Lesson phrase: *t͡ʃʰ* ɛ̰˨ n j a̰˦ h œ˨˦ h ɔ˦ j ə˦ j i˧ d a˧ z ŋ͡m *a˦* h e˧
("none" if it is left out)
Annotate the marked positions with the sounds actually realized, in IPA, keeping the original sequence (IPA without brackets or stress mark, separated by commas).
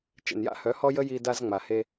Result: t͡ʃ, a˨